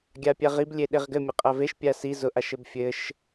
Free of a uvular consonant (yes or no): no